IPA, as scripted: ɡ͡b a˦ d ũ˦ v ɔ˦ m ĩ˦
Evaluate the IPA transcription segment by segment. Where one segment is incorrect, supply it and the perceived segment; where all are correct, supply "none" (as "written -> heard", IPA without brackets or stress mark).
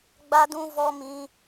none